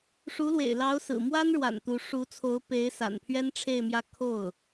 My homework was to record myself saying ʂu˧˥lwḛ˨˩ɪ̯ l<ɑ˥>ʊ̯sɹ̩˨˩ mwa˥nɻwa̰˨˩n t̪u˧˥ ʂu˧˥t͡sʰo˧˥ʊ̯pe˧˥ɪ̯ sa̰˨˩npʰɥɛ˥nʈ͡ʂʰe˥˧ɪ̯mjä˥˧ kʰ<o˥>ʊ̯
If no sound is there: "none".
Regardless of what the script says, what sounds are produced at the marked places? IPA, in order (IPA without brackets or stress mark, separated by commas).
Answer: ɑ˧˥, o˥˩